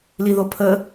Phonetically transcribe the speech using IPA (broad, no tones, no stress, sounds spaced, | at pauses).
l i ð o pʰ ə